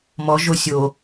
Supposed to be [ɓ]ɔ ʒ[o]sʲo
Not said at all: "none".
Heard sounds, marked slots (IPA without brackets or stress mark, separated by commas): m, o